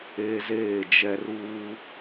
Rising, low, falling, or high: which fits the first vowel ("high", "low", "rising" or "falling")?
high